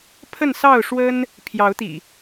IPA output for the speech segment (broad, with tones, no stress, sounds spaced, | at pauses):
pʰ ə˥˨ n s ɑ˥˨ ʊ̯ ʂ w ə˦ n | pʰ j ɑ˨˦ ʊ̯ t̪ ḭ˨˩